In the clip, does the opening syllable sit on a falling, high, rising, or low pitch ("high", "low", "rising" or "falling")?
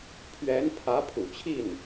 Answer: rising